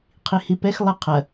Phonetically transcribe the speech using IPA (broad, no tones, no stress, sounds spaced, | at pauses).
qʰ i h i p ɛ x lˠ ə qʰ ɐ